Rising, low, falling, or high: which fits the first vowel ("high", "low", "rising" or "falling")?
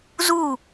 falling